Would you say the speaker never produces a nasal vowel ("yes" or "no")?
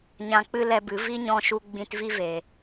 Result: no